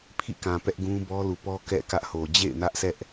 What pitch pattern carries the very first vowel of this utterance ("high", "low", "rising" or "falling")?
falling